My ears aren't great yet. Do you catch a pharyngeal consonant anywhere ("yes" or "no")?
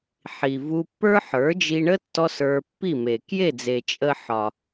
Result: yes